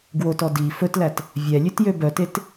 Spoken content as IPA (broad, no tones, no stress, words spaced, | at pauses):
ɡwotɔ di fɵtlæt | vʲɛlʲʉtjø bœtet